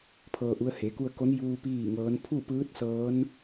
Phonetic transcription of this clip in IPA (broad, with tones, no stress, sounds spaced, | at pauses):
pʰ ɤː˧ ʔ u˧˥ ə̯ h e˩˧ k u˧ ə̯ k o˧˥ n j uː˧ p iː˥˨ ŋ ɤː˧˥ n pʰ u˥˨ p ɯː˧˥ t̚ s ɤː˧˥ n